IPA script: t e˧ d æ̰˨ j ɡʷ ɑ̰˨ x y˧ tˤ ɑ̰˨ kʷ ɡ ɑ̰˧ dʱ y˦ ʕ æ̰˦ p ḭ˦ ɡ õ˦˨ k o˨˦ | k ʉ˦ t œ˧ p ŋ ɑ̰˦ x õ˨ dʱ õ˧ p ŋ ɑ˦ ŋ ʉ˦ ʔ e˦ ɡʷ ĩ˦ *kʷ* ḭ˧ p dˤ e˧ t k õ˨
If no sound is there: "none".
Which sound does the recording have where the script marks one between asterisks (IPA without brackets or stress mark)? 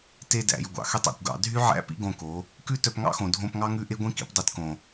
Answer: k